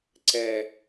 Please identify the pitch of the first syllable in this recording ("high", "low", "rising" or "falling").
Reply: low